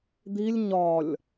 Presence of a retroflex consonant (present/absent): absent